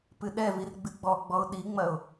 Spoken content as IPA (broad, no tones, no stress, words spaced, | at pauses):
pɨɗɛvir ɡ͡bɨɡ͡bɔɡ͡bɔʊ̯ ɗiŋ͡mɐʊ̯